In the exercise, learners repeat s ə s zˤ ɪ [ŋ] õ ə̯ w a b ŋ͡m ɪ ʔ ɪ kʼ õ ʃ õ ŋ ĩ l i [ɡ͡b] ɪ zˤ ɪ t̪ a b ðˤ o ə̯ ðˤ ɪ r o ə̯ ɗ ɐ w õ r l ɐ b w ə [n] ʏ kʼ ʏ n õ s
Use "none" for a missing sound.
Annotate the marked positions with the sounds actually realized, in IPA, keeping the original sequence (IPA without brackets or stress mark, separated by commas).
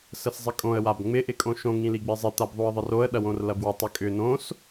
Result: kʼ, ɡ͡b, tˤ